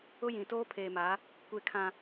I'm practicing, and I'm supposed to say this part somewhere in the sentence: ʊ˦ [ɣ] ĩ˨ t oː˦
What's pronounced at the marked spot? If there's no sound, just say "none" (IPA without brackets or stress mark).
j